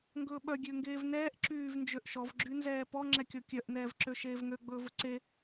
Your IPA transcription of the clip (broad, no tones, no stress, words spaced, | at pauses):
ŋɡɵːɓœ ɡʲøŋɡeːvnɛːʔ ǁyːvnd͡ʒøʔʃɔv ɡ͡ǁynzɛːpɔ ŋ͡ǁɛkʲɔkʲœʔ nɛːvǁøʃeːvŋø ɡ͡bɵːvɵǀe